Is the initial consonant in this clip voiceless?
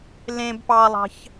no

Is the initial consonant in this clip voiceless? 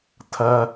yes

